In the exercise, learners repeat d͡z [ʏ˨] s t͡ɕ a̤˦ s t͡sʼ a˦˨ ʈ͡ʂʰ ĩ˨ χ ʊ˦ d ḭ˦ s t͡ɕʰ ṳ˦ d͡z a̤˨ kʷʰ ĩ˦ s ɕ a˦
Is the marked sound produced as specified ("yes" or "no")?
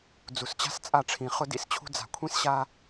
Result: no